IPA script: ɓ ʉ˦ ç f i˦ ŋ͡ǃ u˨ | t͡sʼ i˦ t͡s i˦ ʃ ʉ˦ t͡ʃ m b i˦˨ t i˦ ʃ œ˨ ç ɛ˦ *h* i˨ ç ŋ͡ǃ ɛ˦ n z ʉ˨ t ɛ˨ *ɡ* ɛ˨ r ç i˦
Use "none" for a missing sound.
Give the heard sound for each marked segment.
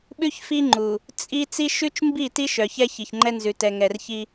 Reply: ç, ŋ

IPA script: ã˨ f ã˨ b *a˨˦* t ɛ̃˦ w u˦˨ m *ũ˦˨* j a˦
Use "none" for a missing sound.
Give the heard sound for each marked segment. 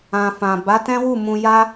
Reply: a˨˦, ũ˧

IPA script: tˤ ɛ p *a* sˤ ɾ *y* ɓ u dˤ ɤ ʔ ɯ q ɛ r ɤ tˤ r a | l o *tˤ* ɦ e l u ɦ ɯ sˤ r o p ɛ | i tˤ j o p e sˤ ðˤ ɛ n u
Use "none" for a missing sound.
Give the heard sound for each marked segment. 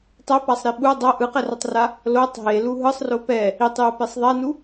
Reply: a, i, tˤ

